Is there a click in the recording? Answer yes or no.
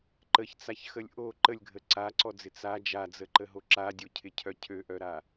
yes